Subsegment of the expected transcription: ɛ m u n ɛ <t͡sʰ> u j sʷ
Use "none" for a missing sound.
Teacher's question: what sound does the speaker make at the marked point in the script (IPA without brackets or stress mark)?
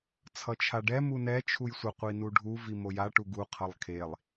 t͡ʃʰ